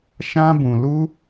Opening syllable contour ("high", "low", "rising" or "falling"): high